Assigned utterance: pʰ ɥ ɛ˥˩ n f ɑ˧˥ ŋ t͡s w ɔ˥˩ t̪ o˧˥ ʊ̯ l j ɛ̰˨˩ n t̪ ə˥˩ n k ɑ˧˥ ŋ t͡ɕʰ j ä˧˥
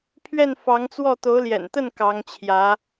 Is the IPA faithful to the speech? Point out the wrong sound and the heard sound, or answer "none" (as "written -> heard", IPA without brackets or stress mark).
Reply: none